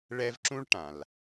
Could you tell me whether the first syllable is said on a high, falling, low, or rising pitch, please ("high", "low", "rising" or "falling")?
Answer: high